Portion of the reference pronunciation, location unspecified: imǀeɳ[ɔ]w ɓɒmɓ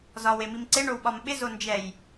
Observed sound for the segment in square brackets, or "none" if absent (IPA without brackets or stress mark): o